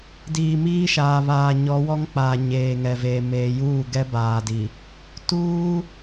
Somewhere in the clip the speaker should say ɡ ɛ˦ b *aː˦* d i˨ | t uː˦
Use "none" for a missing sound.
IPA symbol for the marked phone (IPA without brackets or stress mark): aː˨